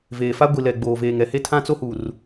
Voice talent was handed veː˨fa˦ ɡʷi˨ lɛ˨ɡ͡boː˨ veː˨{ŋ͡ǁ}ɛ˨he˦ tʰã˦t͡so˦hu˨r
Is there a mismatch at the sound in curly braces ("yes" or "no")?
yes